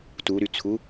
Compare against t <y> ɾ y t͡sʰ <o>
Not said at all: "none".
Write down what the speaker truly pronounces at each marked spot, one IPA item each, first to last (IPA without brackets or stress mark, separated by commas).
u, u